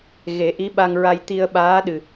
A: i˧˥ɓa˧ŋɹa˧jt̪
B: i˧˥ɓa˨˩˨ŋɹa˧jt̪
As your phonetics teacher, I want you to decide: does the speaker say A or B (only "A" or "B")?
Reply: A